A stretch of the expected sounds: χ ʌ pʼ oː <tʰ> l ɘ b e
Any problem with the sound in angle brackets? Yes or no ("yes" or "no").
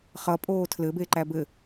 no